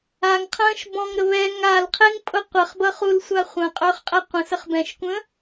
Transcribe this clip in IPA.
a ŋ qʰ ə̃ː ʃ b ɔ̃ ŋ ɾ ə β ɛː ŋ a l qʰ e ŋ pʼ ʊ qʷ ə χ b ʌ χ u l sʷ a χʷ ə̃ː qʼ ɵː χ qʼ ɛ qʷ ə̃ s ə χ b ɛ̃ ʃ kʷ ə̃ː

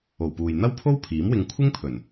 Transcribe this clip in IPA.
o˨˩ w p uː˨ j n̪ ɐ˥ w pʰ o˥ w pʰ iː˨˥ m w ɪ˧ ŋ kʷʰ ɪ˥ ŋ pʰ ɵ˨˩ n

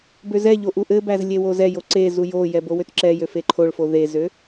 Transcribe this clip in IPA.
b ø z ɛ ʎ o ʔ u ʔ ɘ b æ z lʲ e w o z ɛ j o ǀ e z u j o j ɛ b o w ø t ǁ ɛ j ø f e ǃʰ o ɭ f o ð e z ø

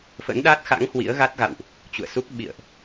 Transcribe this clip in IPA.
f ə̰˧˥ n ɗ a˦˥ t̚ x a̰˧˥ ŋ h w ḭ˧˥ ə̯ ɣ a˦˥ t̚ ɣ a̰˧˨ w ʔ | t͡ɕ ṵ˧˨ ə̯ s u˦˥ k̚ ɓ ḭ˧˨ ə̯ ʔ

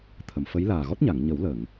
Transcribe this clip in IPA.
t̪ʰ ə˨˩˨ m f ə˧˥ j l aː˨˩ ɣ ɔ˦˥ t̚ ɲ a˨˩˨ ŋ ɲ ə˨˩˦ w l ə˨˩˨ ŋ

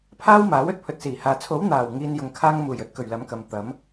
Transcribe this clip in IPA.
pʰ aː˥ w m aː˨˥ w ɵ˥ t̚ pʰ ɵ˨ t̚ s iː˨˩ h aː˨ t͡sʰ o˨˥ w n̪ aː˨˩ w ŋ iː˨ n j ʊ˧ ŋ kʰ aː˥ ŋ m uː˨˩ j ɵ˧ t̚ k ɵ˨˩ ɥ l ɐ˨˥ m k ɐ˨ m t̪ ɐ˨˥ m

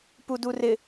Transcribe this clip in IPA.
p u d u r ɪ

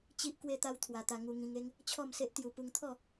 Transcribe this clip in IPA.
t͡ɕ i˦ ʔ k w e˦ t̪ a˦ w t̪ʰ w a˧ t̪ a˧ ŋ u˧ ŋ ĩ˧ ŋ e˦ ŋ | t͡ɕʰ ɔ˥˧ m s e˦ ʔ t̪ j u˧ p u˧ ŋ t̪ʰ ɔ˥˧

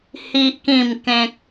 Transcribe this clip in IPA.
h i˦ ʔ k ĩ˥˧ m k ẽ˦ k̚

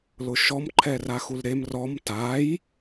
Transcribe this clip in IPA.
l ʊ ʃ ɔ m ǃʰ ɛ r a x u l ɾ e m r ɔ m t a j

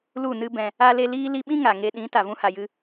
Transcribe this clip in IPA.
l u˦˨ n ɨ˦ b ɛ̃˧ | a˧ l e˧ l iː˦ l i˧ ɓ ĩ˦ ŋ a˨ ŋ e˧ ɗ ĩ˨˦ t a˨ v ũ˧ h a˨ j ɨ˧

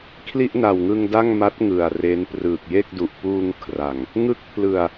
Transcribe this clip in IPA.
kʰ l i˥˩ ʔ n a˨˩ w ŋ ɯ˧ ŋ d a˥˩ ŋ m a˦˥ t̚ ŋ ɯ˨˩ a̯ r e˦˥ n p r ɯː˨˩ k̚ j e˥˩ k̚ d u˨˩ ʔ p uː˧ ŋ kʰ r a˨˩ ŋ | ŋ ɯ˦˥ k̚ pʰ l ɯ˨˩ a̯

